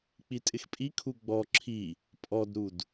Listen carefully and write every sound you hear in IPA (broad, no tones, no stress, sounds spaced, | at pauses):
k͡p i tʼ ɪ x pʼ i kʰ u ɡ͡b ɔ ǁʰ i | pʼ ɔ d ɾ u d